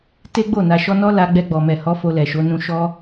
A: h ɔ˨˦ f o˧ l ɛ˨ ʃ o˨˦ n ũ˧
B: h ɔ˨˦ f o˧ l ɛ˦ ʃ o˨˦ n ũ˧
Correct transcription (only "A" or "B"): A